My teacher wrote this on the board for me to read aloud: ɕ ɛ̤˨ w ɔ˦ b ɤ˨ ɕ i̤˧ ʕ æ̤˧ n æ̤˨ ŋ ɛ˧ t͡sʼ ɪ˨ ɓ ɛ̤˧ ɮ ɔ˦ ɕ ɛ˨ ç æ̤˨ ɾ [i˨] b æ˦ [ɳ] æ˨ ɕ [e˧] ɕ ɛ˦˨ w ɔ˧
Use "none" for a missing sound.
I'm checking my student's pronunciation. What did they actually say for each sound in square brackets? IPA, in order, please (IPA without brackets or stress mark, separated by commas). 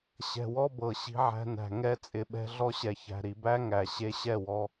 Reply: i˨, ŋ, e˧